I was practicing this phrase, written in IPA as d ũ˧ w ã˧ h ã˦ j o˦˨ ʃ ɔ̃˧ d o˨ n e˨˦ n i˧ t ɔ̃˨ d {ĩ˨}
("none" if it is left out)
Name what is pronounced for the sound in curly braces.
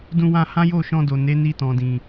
ĩ˨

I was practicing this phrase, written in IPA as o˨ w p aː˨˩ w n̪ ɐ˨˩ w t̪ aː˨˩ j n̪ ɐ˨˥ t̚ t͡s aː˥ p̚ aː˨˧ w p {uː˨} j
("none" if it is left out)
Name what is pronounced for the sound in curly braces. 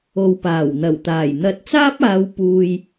uː˨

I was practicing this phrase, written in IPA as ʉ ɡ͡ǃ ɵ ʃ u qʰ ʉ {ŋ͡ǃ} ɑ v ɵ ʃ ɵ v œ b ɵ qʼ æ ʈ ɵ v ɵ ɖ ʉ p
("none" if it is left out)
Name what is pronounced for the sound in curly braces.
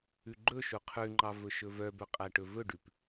ŋ͡ǃ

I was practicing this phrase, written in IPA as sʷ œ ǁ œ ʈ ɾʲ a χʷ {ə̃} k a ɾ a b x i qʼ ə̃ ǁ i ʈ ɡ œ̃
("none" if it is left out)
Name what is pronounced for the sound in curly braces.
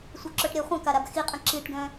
ə̃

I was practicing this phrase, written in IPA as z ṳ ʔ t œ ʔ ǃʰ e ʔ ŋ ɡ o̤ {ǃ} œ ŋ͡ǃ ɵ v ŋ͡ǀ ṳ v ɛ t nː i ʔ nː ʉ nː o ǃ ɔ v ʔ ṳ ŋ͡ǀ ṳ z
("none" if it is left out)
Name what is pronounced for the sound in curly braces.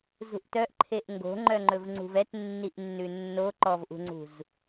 ŋ͡ǃ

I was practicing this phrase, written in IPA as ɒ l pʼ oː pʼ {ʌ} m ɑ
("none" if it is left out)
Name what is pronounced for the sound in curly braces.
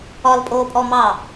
ɔ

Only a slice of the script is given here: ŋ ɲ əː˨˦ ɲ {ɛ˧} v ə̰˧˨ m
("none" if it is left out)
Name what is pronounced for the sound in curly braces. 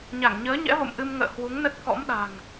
ɛ̰˧˥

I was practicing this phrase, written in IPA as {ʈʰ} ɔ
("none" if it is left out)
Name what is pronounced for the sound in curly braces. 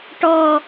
ʈ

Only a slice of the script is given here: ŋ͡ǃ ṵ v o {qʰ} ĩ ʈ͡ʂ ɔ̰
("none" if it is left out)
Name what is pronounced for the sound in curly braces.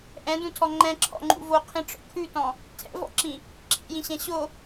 qʰ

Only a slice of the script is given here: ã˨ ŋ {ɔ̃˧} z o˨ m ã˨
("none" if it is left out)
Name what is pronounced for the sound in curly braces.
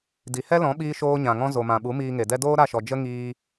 ɔ̃˧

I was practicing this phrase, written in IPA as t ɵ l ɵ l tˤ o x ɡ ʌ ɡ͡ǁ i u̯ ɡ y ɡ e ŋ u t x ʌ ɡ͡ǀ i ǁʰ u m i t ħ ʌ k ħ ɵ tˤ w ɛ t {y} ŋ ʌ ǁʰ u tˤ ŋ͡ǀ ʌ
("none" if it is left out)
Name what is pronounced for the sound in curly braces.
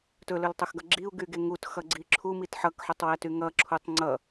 y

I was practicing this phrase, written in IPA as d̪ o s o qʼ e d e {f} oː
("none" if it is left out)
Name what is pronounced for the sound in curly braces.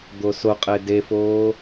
f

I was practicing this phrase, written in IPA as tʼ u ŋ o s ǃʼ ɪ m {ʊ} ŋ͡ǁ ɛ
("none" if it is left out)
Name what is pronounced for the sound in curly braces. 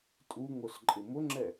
ʊ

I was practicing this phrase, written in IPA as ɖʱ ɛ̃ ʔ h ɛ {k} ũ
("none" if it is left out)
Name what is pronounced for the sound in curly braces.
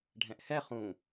χ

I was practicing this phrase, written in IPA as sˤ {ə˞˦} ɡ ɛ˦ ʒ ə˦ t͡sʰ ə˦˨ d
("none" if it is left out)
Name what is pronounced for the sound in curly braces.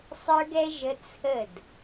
ə˞˦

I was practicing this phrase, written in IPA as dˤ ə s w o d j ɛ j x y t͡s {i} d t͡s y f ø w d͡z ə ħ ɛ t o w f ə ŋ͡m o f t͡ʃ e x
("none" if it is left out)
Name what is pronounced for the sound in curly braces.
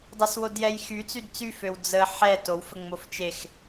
y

